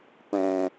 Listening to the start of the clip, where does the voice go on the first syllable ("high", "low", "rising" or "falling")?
low